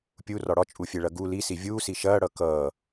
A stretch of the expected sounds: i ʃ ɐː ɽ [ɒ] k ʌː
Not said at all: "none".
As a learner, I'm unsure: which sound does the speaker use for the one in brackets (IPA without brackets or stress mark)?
ʌ